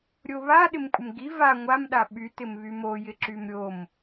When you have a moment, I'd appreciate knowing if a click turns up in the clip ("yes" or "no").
yes